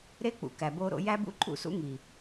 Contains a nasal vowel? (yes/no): no